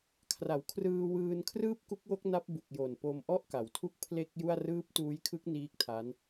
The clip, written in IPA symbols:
kʰra˩˦wkʰrɯː˧wɯː˧n kʰrɯː˥˩p̚ku˦˥k̚wo˦˥k̚ na˦˥p̚bu˨˩k̚ jo˨˩npo˧mʔɔ˥˩ʔka˩˦w tʰu˥˩k̚pʰle˥˩k̚ju˥˩a̯ rɯː˦˥p̚tuː˦˥jkʰɯ˦˥k̚ niː˦˥k̚tʰa˦˥n

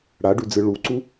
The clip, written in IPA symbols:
ɽaɖʉd͡zɨ ɭuǀu

